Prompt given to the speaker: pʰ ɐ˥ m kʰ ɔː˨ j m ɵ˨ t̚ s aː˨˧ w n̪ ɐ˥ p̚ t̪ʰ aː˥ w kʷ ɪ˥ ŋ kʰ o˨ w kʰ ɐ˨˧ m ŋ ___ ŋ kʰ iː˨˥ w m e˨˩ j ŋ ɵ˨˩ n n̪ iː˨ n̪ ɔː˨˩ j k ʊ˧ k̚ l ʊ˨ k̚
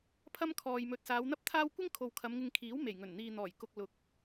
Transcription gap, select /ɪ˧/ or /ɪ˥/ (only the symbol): ɪ˧